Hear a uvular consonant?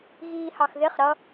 yes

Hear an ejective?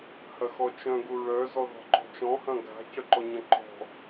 no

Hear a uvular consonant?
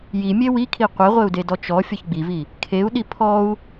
yes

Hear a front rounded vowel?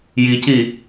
no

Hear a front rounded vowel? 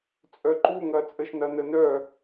yes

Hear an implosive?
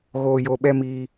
yes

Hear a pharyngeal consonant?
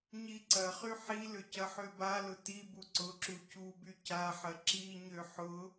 yes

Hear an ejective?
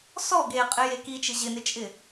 yes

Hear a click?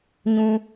no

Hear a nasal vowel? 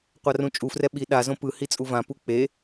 yes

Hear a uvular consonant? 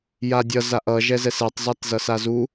no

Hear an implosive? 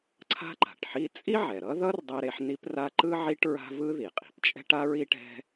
no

